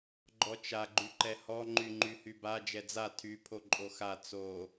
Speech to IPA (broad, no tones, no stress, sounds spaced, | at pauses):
ɡ͡ǃ ɔ t͡ʃ a ɡ͡ǃ y ǃ ɛ h ɔ ŋ͡ǃ y ŋ͡ǃ y h y b a d͡ʒ ɛ d͡z a tʰ y pʰ o ǃʼ o x a t͡s o